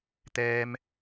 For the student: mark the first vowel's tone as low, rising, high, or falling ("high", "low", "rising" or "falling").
high